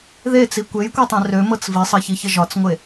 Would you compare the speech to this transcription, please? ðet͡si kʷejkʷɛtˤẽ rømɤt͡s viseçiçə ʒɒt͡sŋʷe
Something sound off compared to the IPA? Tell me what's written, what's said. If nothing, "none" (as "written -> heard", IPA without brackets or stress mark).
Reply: s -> sˤ